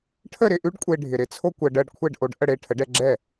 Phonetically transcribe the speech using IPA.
ʈʰ ə˥˩ ɾ ɪ˥˩ ʔ ʉ˥ ɖ kʷʼ e˧ ɖʱ ɪ˩ ɾ ɪ˥ t͡sʰ o˥ kʷ ɜ˧ ɖ ɜ˥˩ ɖ kʷʰ ɛ˥˩ ɖ ʔ o˧ ɖ ʔ ə˥˩ ɽ e˥˩ ʈʰ ə˩˥ ɖ ɛ˧ ɡ͡ǁ ɛ˥˩

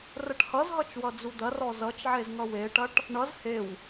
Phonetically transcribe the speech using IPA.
r ə ʈ h ʌ z ɦ ʌ t͡ʃ w ʌ d͡z u d̪ ɐ r ɔ z ʌ t͡ʃ ʕ e z ŋ ʌ w e ʈ ɐ ʈ | ɳ ʌ z h e w

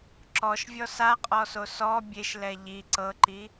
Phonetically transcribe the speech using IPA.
ǁ ɔ ʃ vʲ ɔ s a qʼ ɔ s o s ɔ bʲ e ʃ l ɛ ʎ i ǀ ɤ ǃ i

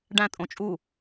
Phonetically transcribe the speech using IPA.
ɖ æ̃ tʼ õ t͡ʃʼ u

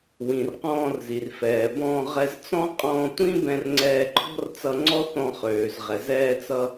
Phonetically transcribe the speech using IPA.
w ĩ˩ r q ɔ̃ː˧ r z i˩ r f ɛː˩ b ɔ̃ː˧ ʁ ɛ˧ z t͡s ɔ̃˥ qʼ ɔ̃ː˧ tʷ ĩ˥ b ɛ̃˧ r ŋ͡ǀ ɛː˧ ǃʰ ɔ̤˥ r t͡s ʌ˧ ŋ͡ǀ ɔ˥ θ ɔ̃˧ χ øː˩ z ʁ ɛ˩ z ɛː˧ t͡s ʌ˧

